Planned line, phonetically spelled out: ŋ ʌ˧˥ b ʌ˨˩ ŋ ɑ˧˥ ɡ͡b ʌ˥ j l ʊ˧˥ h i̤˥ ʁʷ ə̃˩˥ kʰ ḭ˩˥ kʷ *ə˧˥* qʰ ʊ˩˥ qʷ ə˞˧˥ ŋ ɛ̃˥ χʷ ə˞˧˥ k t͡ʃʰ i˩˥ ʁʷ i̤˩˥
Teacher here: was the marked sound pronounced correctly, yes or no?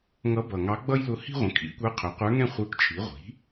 no